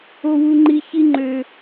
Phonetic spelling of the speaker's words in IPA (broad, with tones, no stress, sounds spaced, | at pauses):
o˦ w u˦ ŋ͡ǃ i˦ ç i˦ ŋ͡ǃ ø˦